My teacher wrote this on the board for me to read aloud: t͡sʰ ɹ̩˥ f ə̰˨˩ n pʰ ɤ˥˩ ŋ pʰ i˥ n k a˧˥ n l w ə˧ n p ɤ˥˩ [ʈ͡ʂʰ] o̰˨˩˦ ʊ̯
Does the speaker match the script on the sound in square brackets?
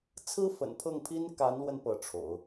yes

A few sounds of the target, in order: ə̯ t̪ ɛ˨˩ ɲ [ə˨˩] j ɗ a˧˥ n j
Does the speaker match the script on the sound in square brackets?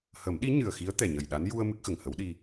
yes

